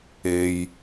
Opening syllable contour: low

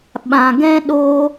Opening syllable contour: low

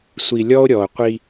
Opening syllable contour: low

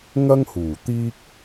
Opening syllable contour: high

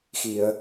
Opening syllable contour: low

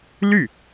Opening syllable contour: falling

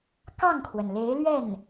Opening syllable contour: falling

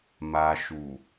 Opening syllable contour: low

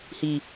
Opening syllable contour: low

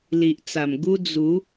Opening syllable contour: low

